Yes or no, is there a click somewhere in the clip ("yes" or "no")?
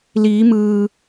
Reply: no